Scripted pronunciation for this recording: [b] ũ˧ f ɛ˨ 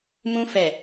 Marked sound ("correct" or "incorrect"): incorrect